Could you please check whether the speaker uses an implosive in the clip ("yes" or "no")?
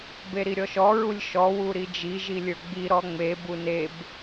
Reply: no